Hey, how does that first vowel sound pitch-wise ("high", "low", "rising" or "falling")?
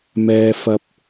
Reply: low